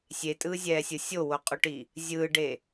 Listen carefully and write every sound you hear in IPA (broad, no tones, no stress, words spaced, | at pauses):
sʲetʼɯːzʲɛːsʲɯ sʲowoqʼuʈi | zʲɯːɖe